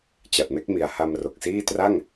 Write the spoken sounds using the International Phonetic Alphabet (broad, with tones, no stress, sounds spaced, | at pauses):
t͡ɕ a˨˩ t̚ m e˥˩ k̚ m i˨˩ a̯ h a˧ m r o˨˩ k̚ s iː˥˩ t r a˥˩ ŋ